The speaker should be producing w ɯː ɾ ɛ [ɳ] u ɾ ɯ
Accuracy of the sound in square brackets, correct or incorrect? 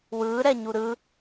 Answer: incorrect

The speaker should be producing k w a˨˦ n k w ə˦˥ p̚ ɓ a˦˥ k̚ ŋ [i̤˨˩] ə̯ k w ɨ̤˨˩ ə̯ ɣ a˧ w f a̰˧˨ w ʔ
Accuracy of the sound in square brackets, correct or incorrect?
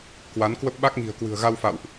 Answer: correct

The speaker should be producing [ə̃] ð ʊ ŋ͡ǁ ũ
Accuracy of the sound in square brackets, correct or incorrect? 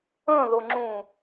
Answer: correct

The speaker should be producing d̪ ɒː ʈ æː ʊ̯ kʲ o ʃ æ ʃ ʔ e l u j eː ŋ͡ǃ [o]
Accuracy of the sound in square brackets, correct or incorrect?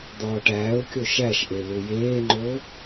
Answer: correct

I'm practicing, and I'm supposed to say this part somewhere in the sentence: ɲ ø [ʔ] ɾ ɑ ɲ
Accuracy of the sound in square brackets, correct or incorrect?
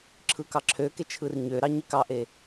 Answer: incorrect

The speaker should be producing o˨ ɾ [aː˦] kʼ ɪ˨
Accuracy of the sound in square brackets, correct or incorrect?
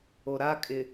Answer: correct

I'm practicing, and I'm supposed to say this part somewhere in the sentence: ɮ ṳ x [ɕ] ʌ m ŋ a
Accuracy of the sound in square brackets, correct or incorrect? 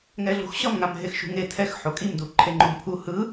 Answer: correct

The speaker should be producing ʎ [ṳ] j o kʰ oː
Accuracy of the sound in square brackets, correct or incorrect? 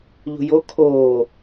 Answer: correct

